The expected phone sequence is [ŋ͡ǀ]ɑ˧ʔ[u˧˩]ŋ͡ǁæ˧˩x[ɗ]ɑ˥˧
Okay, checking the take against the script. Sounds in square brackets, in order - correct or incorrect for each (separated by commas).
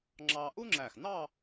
incorrect, incorrect, incorrect